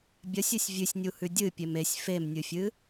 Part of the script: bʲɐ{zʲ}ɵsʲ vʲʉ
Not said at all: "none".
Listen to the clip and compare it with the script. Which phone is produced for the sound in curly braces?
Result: sʲ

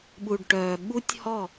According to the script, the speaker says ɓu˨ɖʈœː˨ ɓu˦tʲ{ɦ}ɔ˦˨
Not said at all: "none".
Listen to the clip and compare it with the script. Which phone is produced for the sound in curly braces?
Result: h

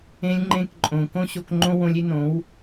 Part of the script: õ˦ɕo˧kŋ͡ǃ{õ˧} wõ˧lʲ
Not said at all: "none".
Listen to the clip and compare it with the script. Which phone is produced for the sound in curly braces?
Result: õ˦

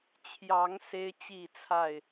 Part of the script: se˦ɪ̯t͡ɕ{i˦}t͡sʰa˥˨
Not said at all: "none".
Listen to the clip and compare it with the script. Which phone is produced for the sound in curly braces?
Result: i˥˨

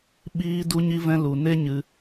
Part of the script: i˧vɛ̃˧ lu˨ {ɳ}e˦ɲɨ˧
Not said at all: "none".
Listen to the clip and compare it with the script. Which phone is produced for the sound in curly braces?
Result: n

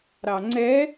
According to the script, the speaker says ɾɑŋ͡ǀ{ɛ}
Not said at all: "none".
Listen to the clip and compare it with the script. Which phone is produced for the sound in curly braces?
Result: ɛ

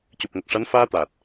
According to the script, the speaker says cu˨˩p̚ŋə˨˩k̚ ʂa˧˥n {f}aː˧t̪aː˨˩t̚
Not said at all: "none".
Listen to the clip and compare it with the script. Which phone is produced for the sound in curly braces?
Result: f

